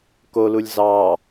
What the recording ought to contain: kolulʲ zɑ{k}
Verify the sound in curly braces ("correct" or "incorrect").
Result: incorrect